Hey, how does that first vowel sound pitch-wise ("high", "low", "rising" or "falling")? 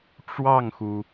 falling